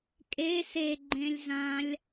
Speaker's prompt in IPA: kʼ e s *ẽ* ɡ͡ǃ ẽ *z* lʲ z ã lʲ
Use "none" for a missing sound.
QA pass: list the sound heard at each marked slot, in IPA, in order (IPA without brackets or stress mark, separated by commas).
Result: e, none